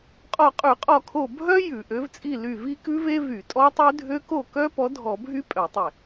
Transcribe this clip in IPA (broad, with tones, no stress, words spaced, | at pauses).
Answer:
qʼɔ˧˩qʼʉ˧˩˧qʼɔ˧˩kʰo˧˩ bʱœ˦˥ jʉ˧˩˧ʔø˨˥vt͡sʼi˥˨ ly˧˩vi˦˥kʉ˦˥ve˦˥ vy˧˩˧tʼɔ˦˥tˤʉ˦˥ dʱø˦˥ko˥˨ kœ˦˥ pɔ˨˥dʱɔ˧˩˧bʱy˦˥ pʼœ˧˩˧tˤe˧˩